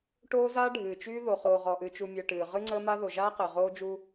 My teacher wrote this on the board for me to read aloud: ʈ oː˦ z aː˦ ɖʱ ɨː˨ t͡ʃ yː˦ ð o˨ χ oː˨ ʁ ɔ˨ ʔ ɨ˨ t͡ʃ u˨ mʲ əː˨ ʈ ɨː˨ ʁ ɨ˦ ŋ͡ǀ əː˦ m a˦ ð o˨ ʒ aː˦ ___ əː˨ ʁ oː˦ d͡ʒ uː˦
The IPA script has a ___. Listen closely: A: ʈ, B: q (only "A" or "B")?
B